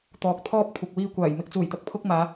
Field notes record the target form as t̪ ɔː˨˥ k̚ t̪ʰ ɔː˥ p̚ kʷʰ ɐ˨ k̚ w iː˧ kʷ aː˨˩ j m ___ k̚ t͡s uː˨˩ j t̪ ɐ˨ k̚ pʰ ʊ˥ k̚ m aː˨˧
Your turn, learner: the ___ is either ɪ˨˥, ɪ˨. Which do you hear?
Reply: ɪ˨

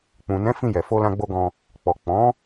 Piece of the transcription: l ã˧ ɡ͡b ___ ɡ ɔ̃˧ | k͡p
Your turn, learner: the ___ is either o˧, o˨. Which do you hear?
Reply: o˧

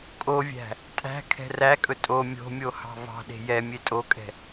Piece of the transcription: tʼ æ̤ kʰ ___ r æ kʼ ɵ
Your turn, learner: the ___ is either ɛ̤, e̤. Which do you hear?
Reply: ɛ̤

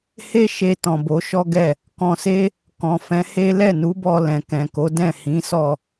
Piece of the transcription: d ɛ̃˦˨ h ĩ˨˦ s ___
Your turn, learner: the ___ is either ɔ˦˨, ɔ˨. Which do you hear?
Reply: ɔ˦˨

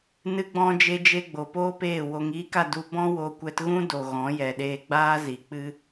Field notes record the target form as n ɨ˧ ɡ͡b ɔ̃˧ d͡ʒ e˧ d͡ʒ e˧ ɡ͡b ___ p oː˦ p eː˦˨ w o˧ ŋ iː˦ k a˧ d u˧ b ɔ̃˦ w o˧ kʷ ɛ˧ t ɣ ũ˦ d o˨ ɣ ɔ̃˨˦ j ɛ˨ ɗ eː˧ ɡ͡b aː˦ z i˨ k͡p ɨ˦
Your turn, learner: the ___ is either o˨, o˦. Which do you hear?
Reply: o˨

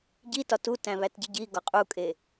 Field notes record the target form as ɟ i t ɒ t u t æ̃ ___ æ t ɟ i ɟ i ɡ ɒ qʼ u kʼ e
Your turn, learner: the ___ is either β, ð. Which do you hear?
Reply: β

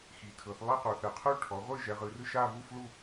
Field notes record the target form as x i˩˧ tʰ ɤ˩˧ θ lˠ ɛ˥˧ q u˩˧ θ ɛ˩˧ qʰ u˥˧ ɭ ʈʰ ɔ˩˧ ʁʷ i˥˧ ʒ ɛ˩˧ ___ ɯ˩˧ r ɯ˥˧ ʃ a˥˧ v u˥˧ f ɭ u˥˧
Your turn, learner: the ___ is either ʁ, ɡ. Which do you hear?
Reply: ʁ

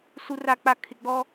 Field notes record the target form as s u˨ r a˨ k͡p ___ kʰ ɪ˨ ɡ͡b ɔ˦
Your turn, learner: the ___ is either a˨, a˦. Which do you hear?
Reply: a˨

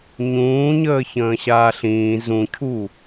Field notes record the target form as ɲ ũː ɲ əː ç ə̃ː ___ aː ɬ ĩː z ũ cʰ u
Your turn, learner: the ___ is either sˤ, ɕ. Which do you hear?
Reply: ɕ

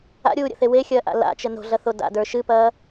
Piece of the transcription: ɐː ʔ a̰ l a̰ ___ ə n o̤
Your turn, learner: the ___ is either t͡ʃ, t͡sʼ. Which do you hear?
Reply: t͡ʃ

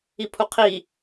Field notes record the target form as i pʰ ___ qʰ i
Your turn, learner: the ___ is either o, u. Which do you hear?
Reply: u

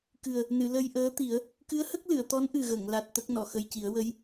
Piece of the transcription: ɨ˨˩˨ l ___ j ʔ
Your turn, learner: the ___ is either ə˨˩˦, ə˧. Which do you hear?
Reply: ə˧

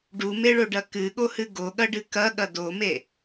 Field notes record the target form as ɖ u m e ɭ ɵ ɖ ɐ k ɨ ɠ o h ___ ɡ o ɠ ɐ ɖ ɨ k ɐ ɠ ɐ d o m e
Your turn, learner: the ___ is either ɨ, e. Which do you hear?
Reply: ɨ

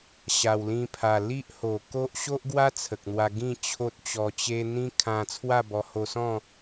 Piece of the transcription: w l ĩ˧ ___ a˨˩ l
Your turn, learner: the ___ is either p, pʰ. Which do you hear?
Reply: pʰ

